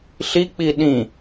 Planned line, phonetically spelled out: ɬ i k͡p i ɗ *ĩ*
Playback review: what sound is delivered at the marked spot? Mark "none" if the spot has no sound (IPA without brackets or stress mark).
ĩ